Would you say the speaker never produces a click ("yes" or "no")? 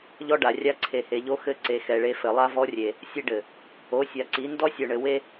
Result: no